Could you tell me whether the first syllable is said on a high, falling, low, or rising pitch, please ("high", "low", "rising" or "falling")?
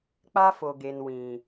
high